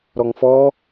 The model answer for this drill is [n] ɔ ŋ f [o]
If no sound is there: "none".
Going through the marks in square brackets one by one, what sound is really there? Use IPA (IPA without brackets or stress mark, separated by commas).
ɾ, ɔ